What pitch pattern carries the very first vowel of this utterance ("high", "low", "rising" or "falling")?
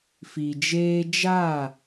low